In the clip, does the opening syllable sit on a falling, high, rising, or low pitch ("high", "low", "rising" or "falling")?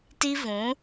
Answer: high